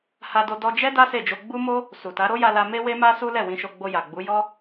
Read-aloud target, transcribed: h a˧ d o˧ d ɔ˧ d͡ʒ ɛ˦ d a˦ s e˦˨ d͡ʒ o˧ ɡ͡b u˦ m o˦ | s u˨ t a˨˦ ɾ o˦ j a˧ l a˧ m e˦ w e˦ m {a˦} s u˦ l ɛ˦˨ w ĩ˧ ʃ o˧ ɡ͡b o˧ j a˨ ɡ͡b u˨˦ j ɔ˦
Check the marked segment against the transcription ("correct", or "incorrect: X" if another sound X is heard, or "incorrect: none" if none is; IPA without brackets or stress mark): correct